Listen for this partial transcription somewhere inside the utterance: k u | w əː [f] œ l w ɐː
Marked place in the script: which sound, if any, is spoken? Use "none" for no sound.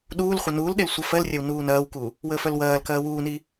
f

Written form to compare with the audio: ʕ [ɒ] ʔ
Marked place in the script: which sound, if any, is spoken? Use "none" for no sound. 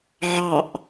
ɑ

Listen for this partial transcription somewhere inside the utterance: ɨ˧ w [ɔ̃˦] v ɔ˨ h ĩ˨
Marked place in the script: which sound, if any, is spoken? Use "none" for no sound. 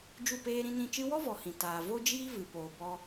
ɔ˦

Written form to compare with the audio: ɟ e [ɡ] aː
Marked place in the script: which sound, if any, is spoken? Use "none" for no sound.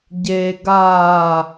ɡ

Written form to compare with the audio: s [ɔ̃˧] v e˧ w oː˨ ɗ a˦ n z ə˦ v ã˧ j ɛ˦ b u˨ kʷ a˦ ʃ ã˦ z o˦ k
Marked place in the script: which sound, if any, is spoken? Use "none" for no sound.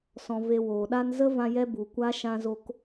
ɔ̃˧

